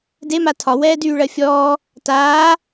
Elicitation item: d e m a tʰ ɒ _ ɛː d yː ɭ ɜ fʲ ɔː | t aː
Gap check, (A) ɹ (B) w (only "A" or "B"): B